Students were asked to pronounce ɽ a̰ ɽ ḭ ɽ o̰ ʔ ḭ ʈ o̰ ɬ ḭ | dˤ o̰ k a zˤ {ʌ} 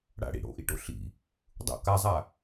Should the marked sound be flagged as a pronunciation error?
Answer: yes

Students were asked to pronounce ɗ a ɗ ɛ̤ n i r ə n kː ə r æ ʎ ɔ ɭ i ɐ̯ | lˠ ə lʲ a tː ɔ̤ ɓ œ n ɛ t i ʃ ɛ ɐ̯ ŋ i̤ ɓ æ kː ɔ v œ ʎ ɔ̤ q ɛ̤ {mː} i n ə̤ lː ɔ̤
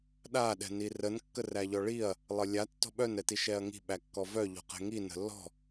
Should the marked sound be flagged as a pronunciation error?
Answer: yes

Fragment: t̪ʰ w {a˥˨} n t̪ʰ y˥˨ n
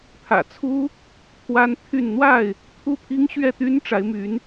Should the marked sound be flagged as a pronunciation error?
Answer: yes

